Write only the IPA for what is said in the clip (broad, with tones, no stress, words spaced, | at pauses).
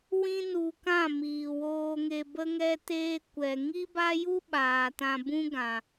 wĩ˦nu˧kã˦˨ miː˨woː˧ŋe˧ bə˦ŋɛ˦teː˦ kʷɛ˧ ŋi˦ba˦ju˦ ɓaː˨tã˧bũ˦ɡã˨